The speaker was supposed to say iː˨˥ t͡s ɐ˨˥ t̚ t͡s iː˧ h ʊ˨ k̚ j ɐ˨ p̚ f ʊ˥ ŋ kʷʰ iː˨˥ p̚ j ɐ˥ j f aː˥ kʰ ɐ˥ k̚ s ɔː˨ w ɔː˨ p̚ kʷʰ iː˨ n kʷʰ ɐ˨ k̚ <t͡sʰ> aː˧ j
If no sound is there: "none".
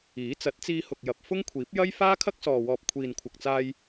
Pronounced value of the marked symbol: t͡s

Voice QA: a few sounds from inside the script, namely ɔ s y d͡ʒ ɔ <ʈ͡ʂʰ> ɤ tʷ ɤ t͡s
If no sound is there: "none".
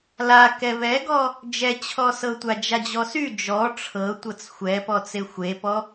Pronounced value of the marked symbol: ʈ͡ʂʰ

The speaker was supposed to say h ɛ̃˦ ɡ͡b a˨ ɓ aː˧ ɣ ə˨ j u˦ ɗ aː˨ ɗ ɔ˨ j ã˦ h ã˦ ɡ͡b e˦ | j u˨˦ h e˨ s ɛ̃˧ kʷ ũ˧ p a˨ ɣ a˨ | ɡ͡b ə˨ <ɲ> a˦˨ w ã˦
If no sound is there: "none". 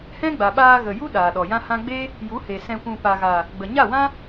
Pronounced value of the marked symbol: ɲ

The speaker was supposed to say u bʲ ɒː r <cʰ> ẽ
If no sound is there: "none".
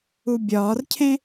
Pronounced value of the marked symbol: cʰ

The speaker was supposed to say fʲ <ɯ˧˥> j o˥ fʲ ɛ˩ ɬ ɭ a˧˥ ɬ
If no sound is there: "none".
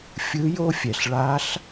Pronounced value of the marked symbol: ɯ˧˥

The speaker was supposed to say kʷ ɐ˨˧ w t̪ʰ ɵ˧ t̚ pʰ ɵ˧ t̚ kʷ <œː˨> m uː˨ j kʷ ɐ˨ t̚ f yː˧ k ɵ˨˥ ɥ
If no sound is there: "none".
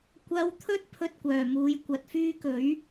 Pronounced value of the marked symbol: œː˨˩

